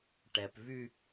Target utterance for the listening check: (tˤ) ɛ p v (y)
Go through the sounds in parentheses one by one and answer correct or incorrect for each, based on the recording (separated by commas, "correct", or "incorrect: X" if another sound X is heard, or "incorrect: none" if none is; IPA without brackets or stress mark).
incorrect: ʈ, correct